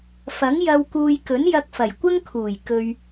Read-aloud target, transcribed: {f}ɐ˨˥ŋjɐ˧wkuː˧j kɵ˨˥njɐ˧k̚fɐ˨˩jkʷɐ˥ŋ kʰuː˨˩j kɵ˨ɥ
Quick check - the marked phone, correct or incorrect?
correct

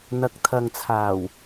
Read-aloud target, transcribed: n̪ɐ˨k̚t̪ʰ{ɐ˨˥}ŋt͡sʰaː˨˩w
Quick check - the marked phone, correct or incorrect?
incorrect: ɐ˨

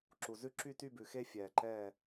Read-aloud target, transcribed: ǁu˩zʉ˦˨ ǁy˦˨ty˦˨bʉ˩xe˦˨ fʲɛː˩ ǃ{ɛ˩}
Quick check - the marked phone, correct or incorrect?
incorrect: ɛ˦˨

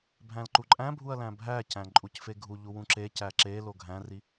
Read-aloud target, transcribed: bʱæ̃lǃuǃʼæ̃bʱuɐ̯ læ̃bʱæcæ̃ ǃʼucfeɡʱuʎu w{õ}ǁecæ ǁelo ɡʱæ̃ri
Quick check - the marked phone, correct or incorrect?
incorrect: ũ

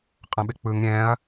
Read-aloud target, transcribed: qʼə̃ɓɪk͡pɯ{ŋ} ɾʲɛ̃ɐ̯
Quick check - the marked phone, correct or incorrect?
correct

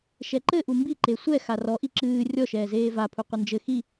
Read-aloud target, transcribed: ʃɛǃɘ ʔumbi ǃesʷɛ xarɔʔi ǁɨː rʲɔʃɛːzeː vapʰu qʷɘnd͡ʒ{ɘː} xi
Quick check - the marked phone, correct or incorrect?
incorrect: ɘ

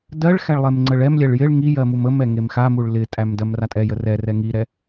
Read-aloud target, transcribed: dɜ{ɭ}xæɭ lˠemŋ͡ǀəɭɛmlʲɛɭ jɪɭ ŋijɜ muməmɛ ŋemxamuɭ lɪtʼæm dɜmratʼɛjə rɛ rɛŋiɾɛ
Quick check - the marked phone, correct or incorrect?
correct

